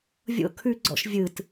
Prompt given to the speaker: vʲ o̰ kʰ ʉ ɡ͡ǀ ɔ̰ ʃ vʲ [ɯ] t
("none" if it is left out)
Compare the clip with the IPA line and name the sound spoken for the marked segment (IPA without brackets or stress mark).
ɯ